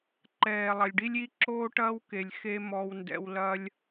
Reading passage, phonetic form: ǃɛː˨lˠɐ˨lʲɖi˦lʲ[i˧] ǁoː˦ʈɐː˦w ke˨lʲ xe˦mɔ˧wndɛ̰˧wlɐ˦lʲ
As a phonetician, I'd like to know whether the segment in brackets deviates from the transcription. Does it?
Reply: yes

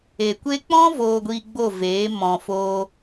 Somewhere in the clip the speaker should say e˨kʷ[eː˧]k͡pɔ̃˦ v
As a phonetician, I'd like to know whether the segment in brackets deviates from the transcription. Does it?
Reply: yes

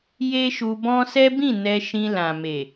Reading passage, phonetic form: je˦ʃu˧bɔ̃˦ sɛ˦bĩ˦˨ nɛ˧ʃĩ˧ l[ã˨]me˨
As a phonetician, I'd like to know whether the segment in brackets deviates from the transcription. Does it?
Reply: no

